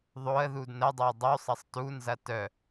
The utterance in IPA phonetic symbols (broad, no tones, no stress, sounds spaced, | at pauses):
ðˤ o ə̯ ð u d n ə dˤ o ə̯ dˤ u sˤ ɐ sˤ t u n z ɐ t œ